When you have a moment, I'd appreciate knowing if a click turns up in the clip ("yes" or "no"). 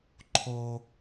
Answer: yes